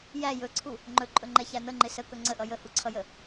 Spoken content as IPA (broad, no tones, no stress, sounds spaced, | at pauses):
j æ j ɵ ǀʰ u | ŋ͡ǃ ɵ ǃʼ ɵ ŋ͡ǃ ɛ ç æ n̪ ə ŋ͡ǃ ɪ s ə k ɵ ŋ͡ǀ ə ʔ ʌ j ə h u ǀʰ ʌ j ə